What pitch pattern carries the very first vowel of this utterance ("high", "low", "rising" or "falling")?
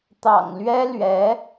low